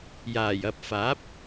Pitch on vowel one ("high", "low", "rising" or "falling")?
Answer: low